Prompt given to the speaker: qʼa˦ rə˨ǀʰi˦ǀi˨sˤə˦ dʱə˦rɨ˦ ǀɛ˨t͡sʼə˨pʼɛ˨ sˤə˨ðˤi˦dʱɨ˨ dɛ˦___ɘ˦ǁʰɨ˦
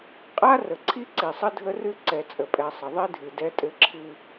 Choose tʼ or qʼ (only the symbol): tʼ